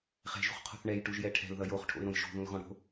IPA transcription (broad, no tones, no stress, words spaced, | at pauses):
χɛ̤ʒṳχqʰo̤θ ɳɛjʈuʒjɛ ʈʰɛ̤lðʌ joχʈʰo̰ɪ̯ɾõj ʃo̤ðũlɣɔ̃ ɽo̤